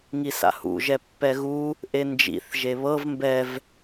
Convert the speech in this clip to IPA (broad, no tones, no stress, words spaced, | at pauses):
ŋisa̰hṵʒɛ pːɛɣu | ʔend͡ʒḭθ ʒeβɤv mbɛv